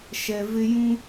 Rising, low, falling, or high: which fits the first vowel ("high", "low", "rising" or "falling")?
low